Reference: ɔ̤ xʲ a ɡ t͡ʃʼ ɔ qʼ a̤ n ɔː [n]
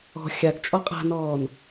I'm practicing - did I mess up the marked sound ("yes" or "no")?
no